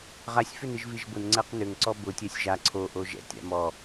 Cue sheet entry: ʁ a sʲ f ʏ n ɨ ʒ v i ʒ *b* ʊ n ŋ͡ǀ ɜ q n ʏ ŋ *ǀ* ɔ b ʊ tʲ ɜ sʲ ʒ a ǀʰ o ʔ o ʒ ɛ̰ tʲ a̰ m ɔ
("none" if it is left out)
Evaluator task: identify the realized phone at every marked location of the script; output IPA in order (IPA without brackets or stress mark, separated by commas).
b, ǀ